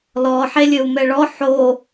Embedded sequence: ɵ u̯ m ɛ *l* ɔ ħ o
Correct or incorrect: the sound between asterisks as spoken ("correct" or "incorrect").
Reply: incorrect